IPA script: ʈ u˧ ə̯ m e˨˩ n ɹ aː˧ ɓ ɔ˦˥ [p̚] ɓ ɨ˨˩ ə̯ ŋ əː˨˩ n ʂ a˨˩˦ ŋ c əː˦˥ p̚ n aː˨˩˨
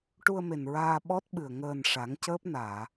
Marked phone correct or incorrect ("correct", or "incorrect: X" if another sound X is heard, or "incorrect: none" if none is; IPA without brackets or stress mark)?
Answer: incorrect: t̚